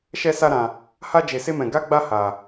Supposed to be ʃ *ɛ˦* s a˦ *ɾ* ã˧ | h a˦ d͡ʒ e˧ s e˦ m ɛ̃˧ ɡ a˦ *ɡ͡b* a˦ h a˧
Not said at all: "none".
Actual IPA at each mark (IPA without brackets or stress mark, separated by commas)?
ɛ˦, ɾ, ɡ͡b